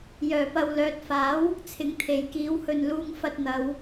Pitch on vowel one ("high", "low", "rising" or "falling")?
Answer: low